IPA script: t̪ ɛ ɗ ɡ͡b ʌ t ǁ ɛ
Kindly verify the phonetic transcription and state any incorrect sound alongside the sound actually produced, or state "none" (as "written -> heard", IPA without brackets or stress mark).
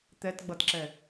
ɗ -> t